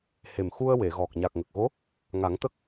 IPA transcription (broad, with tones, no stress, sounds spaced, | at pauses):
h e˨˩ m x u˧ ə̯ w e˨˩˨ ɣ ɔ˨˩ k̚ ɲ a˨˩ k̚ ŋ ə˨˩ k̚ ɣ o˧˥ | ŋ a˨˩˦ ŋ t̪ ə˦˥ k̚